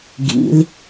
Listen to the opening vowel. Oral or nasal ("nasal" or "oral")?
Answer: oral